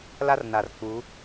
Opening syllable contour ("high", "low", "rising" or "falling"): high